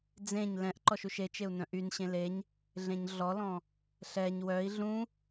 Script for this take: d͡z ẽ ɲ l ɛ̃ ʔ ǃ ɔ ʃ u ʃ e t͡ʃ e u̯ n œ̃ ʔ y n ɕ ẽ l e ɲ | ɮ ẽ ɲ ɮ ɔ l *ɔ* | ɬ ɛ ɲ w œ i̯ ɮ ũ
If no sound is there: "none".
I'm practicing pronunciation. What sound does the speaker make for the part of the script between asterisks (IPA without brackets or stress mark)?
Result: ɔ̃